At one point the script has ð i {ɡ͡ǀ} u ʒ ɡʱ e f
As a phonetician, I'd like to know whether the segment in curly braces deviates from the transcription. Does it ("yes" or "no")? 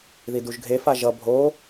yes